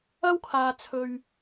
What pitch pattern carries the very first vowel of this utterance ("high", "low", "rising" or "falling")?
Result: high